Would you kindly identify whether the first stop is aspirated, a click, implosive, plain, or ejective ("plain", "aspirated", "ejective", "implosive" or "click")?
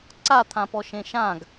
click